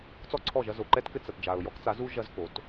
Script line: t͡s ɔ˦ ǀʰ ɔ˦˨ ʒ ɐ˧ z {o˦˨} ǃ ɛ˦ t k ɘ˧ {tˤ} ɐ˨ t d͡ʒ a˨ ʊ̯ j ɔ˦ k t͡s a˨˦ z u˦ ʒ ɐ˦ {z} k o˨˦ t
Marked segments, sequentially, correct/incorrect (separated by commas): incorrect, incorrect, correct